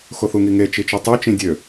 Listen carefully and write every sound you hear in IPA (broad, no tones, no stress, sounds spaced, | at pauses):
x o θ u ŋ i ŋ e t͡ʃ i t͡ʃ ø tˤ y t͡ʃ ĩ dʲ ø